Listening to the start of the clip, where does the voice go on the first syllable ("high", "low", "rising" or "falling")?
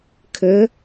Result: rising